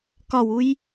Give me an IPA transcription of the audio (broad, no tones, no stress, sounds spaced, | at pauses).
k ɒ w u j